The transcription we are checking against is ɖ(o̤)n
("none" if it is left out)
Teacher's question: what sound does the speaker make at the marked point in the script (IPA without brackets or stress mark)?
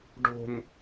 o̤